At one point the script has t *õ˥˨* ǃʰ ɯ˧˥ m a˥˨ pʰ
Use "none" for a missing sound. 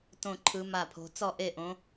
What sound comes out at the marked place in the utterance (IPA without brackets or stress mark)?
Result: õ˥˨